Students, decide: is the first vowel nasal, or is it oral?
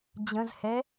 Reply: nasal